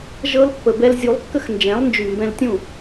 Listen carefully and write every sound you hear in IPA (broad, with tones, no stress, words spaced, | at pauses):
ʒɤ˧lpːə˨bɛ˧l zʲu˨˦lˠkːə˦xnd͡ʒɛ̃˨˦lˠnd͡ʒy˨ mbɛ̃˧ltʲũ˦˨